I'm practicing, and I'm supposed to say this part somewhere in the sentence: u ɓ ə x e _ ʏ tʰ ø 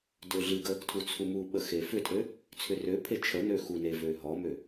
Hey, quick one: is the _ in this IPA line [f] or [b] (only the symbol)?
f